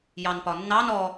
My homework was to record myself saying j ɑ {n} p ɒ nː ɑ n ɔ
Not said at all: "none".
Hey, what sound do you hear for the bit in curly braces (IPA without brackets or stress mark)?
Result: n